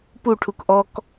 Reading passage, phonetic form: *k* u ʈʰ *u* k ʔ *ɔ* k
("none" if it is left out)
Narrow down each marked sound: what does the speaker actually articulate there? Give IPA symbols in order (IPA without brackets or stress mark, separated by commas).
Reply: p, u, ɔ